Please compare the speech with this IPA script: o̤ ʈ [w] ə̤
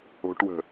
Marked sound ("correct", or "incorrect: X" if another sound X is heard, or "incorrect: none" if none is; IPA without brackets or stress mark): correct